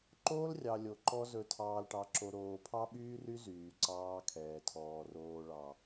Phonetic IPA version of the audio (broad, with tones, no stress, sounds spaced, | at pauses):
ǃ oː˦ l rʲ ɑ˨ lʲ o˨ ǃ ɔ˦ z ɵ˨ tʰ ɑː˨ l ʈ ɑ˨ ǁ o˨ ɾ oː˨ pʰ ɑ˦ ɓ yː˦ r y˦ z yː˨ ǀ ɑː˦ kʰ ɛː˨ tʰ ɔː˨ r oː˨ ɭ ɑ˨